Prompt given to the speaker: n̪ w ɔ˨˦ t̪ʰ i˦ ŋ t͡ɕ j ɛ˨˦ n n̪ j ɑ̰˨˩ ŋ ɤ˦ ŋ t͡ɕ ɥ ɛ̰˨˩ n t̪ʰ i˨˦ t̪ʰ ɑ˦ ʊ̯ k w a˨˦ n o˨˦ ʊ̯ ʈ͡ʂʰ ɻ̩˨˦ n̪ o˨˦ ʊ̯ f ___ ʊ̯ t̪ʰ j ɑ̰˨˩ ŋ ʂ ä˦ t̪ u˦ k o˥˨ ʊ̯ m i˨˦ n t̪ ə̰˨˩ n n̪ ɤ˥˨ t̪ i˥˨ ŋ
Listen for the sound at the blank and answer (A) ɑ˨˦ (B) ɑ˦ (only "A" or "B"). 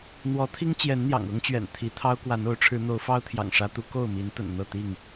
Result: B